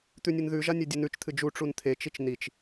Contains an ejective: no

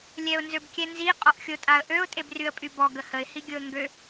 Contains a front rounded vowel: yes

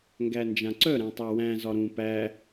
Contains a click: yes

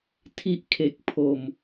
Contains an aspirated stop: yes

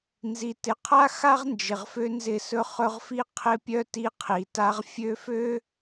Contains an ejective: no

